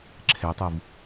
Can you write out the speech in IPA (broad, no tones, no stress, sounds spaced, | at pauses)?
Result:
ǁʰ ɛ tˤ u v